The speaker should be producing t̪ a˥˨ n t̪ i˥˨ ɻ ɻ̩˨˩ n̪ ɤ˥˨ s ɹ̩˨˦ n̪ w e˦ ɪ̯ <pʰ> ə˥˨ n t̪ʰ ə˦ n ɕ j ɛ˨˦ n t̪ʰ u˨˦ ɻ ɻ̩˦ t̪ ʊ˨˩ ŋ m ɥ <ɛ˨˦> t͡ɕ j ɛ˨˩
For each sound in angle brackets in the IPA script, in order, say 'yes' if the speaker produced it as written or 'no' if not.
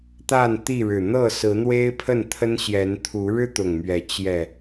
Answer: yes, yes

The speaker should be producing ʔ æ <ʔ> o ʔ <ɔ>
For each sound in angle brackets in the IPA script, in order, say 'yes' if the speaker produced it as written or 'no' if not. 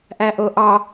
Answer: yes, no

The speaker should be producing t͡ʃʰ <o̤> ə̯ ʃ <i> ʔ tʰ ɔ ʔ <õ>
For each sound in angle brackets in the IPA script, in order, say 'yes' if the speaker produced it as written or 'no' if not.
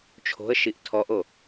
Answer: yes, yes, no

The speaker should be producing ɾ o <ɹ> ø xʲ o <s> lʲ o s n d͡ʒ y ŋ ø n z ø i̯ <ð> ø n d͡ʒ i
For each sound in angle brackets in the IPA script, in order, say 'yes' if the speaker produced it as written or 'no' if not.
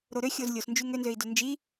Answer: no, no, no

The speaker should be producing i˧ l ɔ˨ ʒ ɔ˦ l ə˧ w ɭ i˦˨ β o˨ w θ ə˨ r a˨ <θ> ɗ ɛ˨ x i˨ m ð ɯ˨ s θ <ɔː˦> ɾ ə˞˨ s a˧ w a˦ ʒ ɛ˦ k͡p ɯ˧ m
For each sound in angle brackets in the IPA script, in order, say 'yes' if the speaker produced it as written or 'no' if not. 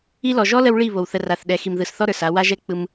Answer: yes, no

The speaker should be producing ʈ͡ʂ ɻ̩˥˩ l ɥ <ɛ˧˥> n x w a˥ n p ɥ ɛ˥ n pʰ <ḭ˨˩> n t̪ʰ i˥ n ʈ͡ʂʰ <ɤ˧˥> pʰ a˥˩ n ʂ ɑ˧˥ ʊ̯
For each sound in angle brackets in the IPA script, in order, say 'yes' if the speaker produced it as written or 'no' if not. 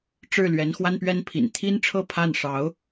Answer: yes, yes, no

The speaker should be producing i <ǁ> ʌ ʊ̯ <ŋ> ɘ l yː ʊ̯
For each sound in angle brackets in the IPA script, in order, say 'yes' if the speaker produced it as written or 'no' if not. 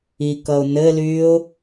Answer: no, no

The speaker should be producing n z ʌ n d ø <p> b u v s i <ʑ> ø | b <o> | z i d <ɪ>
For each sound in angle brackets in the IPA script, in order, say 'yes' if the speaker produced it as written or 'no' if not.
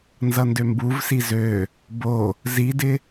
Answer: no, no, yes, yes

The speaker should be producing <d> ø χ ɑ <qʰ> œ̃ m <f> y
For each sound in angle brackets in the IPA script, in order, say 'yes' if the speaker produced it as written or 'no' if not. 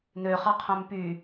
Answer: no, yes, no

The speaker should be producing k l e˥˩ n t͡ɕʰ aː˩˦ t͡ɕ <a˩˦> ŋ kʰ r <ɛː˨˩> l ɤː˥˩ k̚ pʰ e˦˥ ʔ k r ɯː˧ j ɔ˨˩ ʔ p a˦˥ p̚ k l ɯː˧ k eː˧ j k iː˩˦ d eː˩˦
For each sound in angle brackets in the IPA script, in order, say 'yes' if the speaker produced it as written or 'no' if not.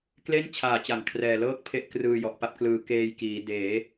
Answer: yes, yes

